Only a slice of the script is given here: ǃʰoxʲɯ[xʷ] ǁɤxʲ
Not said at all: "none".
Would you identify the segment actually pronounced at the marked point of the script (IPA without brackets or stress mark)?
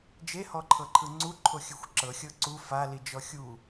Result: xʷ